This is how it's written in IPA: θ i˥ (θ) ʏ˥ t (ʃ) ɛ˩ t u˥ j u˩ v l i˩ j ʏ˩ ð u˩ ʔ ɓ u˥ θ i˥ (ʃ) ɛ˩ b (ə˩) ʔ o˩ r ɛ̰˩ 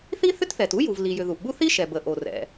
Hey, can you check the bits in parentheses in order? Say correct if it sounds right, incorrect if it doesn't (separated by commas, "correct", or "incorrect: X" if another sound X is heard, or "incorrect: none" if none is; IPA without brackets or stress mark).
correct, incorrect: θ, correct, correct